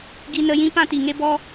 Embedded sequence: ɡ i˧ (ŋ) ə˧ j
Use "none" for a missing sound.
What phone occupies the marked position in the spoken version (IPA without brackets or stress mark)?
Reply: n